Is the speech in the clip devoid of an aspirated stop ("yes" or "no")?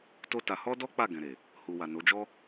yes